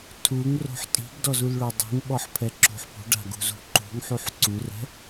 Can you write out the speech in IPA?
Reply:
tʰuŋro̤ħ tʼi̤ɡdɔzulɭʊ dˤṳŋɓɔħpʰɛǁo̤ħ pṳɖa̤ɡṳzṳ ǃṳŋħuħ ǀurɛ̤

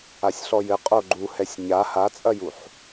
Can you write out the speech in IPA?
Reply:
asʲɬɔjɘ qʼoɡ͡ǃuhɛsʲ ɲa hat͡sʼɐjuħ

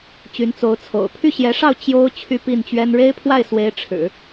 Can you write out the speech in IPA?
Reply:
t͡ɕy˧˥nt͡so˧˥ʊ̯t͡sʰo̰˨˩ʊ̯ pʰy˥˩ɕjɛ˧˥ʂɑ˥˩ʊ̯ t͡ɕjo˥ʊ̯ t͡ɕʰy˥˧pi˥˩nt͡ɕɥɛ˥n ɻe˥ɪ̯pʰwa˥˩ɪ̯swe˧˥ɪ̯ ʈ͡ʂʰɻ̩˨˩˦

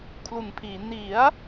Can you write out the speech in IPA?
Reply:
kʰlu˨˩npʰiː˩˦ ni˩˦a̯

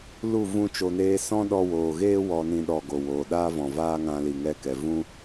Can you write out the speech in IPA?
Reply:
lu˦˨ vũ˦t͡ʃo˧neː˦ sɔ̃˦ ɗɔ˧woː˨ɣeː˦ wɔ˧nĩ˧ ɗɔ˨ ɡo˨woː˨ɗaː˦ vɔ̃˨vaː˦ ŋã˧li˨ŋɛ˧kɛ˨ vũ˦

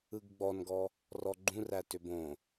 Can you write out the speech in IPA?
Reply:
ɯɡɡ͡bɔnɡɔ | rɔɡ͡ǃũræ tʏbõ

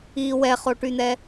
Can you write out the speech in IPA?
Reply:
i wɛχoʈyn̪ɛ

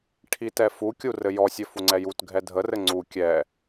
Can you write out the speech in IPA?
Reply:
ʈʰitɛfukʲu rɘjɔsʲɘ fuŋ͡ǀɛjutɡʱɛ dʱərɘ ŋ͡ǀu kʲɛ

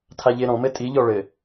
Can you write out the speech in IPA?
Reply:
tʰaʎeɾɔ̃mɘ tʼiʎɔ ɭɘ

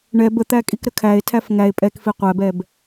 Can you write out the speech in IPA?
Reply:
ɳɛb ət̪ækʼikɾə kʰæe̯tʰæf ŋæe̯ pʼɛkfi qʷæbɛb

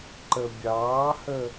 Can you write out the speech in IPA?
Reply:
ǃəbʲɑːhə

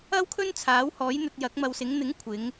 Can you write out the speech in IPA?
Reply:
ɐ˥wkʰɵ˥n t͡sʰaː˨˥whɔː˨˥jn̪ɵ˧t̚ jɐ˨˥k̚mɐ˧wsɪ˨˥ŋ n̪ɪ˨˥ŋkʷʰɪ˨˧ŋ

